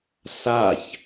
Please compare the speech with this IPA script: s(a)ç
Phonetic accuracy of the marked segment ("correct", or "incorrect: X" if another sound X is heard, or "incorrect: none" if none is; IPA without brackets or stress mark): correct